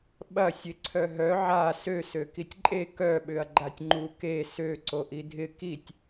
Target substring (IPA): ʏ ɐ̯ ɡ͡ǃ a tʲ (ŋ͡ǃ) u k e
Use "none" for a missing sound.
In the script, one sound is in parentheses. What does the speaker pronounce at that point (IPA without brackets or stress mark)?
ŋ͡ǃ